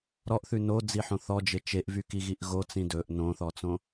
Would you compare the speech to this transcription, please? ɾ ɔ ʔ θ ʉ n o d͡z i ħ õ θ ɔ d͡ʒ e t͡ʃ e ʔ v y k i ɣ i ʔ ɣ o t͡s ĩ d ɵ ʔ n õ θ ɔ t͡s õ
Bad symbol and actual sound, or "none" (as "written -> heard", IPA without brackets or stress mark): none